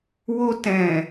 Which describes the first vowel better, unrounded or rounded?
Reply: rounded